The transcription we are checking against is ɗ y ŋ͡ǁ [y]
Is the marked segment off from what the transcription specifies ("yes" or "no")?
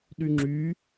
no